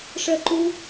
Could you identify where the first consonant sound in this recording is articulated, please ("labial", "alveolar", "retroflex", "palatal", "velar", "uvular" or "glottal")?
retroflex